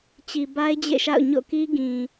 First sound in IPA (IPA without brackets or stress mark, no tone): t͡ɕ